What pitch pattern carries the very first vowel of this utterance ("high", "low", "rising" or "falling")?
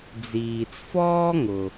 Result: low